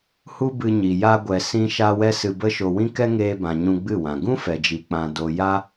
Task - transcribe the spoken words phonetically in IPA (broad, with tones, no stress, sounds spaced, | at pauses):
h u˦ b ɨ˧ ɲ i˨ j a˧ ɡʷ ɛ˨ s ĩ˧ ʃ a˧ w ɛ˦ s ɨ˧ b ə˦ ʃ o˧ w ĩ˦ k ɛ˦ ŋ eː˧ b ã˨ ɲ ũ˧ ɡ͡b ɨ˦˨ w ã˨ ɡ ũ˦ f ɛ˨ d͡ʒ i˨ k͡p ã˧ d o˧ j a˦